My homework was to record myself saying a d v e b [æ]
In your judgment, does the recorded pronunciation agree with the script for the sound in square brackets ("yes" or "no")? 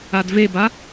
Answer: no